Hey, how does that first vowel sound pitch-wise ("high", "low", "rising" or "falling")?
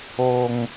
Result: high